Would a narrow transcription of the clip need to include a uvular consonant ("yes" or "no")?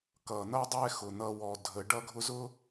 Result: no